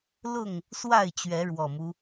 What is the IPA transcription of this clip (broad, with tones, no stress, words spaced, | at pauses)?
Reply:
lʊ˥˨ŋ | swa˥˨ɪ̯ t͡ɕɥɛ˨˦ɻwɔ˨˩mu˦